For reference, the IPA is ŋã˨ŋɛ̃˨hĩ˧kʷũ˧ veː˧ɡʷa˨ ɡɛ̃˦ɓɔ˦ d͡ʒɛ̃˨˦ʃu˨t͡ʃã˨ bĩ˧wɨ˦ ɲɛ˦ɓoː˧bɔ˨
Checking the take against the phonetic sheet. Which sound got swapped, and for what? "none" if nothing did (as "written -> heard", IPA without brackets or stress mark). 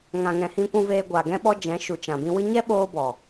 none